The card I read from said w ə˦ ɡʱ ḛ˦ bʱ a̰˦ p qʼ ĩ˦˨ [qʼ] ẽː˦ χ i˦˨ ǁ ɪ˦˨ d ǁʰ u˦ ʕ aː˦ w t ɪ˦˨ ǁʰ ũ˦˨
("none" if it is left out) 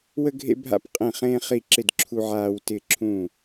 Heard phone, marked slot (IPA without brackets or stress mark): χ